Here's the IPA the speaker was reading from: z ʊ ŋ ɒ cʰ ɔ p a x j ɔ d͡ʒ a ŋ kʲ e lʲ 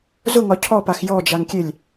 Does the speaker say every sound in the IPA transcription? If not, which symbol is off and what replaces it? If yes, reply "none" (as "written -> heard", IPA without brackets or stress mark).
none